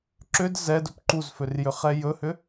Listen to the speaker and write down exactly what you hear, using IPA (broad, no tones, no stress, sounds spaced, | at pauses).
ǁ ʏ d z ɛ d ɵ p ǃ u z f ø r j ʏ χ ɛ j ɵ h ʏ